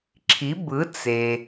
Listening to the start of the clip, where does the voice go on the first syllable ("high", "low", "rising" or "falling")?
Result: rising